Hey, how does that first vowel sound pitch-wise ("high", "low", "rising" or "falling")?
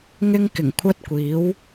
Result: high